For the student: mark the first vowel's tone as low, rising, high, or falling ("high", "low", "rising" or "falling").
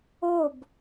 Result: falling